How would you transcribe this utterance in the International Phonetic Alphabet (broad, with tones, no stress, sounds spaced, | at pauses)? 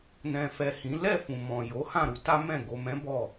n ɛ̃˨ f ɛ˨ h ĩ˨˦ l ɛ˦˨ f ũ˨ m ɔ̃˨ j o˨˦ h ã˦˨ ɾ u˧ t a˦ m ɛ̃˦˨ ɡ o˨ m ɛ̃˨˦ b ɔ˦˨